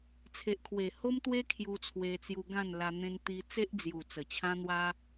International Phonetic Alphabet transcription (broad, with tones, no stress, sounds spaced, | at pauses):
t͡sʰ e˨ ʔ kʰ w e˨˩ h o˦ m t̪ w e˦ kʰ j u˧ t͡sʰ w e˧ t͡s j u˧ ɡ ã˥˧ n l a˧ n̪ ẽ˧ n t̪ i˧ t͡s e˦ ʔ d͡z j u˨˩ t͡s ə˨˩ t͡ɕʰ ã˦ n̪ w a˦